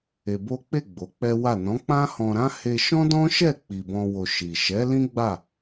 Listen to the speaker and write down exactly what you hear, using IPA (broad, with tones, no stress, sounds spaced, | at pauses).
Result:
e˧ b o˦ k͡p e˦˨ ɡ͡b o˨˦ k͡p ɛ˦ w a˦˨ n ɔ̃˨˦ k͡p ã˦ h ɔ̃˧ ɾ ã˦ h e˧ ʃ ɔ̃˦ d ɔ̃˦ ʃ ɛ˦˨ k͡p i˨ b ɔ̃˧ w o˨ ʃ i˨ ʃ ɛ˨˦ l ĩ˦ ɡ͡b a˦˨